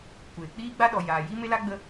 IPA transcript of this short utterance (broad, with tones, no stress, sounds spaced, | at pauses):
kʷ eː˨ k͡p iː˦ ɡ͡b a˦ ɗ ɔ˨ j aː˨ j i˦ m e˦ l a˦ ɡ͡b ə˧